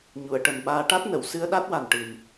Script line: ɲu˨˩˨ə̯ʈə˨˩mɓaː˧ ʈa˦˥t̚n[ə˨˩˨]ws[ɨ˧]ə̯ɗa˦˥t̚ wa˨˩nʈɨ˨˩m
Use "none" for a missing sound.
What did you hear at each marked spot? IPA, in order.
ə˨˩˨, ɨ˧

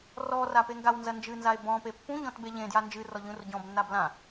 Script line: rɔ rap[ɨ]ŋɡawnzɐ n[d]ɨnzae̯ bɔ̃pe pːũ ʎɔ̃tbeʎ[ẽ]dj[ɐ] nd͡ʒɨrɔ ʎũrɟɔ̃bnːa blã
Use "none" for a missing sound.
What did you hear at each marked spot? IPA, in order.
e, d͡ʒ, ẽ, a

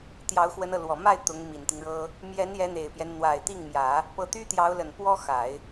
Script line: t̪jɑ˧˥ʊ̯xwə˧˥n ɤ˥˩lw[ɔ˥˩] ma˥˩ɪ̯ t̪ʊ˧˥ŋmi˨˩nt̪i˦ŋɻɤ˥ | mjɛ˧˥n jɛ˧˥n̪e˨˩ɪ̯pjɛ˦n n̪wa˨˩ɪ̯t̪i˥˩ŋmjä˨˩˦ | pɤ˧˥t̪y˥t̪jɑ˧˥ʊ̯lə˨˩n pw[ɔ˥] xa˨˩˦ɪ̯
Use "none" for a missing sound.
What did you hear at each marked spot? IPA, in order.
ɔ˨˩, ɔ˥

